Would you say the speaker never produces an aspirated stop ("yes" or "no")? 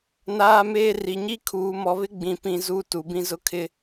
no